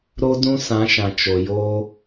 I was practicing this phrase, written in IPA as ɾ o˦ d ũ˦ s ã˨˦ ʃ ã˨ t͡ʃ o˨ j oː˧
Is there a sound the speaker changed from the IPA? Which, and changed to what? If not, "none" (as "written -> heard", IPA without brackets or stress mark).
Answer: none